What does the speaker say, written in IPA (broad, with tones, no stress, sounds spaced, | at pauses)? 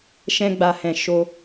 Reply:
ʃ ɛ̃˧ ɡ͡b a˨ h ɛ̃˨ ʃ o˧